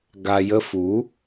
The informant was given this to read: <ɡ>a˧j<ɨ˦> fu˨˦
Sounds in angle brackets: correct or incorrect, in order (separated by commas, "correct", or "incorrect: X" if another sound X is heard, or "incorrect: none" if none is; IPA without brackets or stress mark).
correct, incorrect: ə˦